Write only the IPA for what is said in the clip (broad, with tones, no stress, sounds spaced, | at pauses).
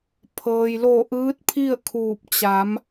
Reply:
pʰ ɤː˩ j l o˧˩ ʔ ɯː˧˥ t̚ pʰ i˥˨ ə̯ kʰ uː˧˩ p̚ t͡ɕ a˩˧ m